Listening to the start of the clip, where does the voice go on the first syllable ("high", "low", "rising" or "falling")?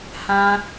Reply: high